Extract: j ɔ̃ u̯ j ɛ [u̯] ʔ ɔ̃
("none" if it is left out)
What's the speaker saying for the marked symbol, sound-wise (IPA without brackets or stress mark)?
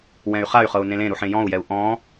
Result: u̯